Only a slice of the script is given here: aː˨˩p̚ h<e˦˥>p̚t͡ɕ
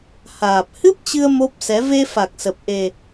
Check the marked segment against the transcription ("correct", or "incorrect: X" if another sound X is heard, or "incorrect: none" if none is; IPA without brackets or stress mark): incorrect: ɨ˦˥